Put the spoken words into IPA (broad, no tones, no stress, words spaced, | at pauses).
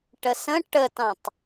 ʈəsə̃ ʈətɑ̃tˤ